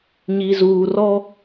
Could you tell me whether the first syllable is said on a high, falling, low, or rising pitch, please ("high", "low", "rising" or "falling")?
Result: low